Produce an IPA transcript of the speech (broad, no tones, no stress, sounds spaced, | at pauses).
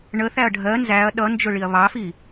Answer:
ɳ ə θ æ ɐ̯ ɖʱ ɜ n z æ ɐ̯ ɗ ʌ n d͡ʒ ʊ ɭ i ɐ̯ β ɑ f i